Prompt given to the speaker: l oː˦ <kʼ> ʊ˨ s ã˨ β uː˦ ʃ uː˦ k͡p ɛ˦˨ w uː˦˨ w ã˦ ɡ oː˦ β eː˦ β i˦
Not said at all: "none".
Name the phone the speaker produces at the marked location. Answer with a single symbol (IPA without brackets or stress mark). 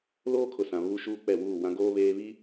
kʰ